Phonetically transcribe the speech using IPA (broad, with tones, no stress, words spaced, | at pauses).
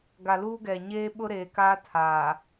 ɡa˨luː˦ɡɛ˨ ɲeː˦ɓʊ˦ɾeː˨kaː˦ tʰaː˨